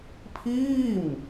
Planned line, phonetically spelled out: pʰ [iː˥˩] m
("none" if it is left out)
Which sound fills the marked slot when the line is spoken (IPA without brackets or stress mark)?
iː˥˩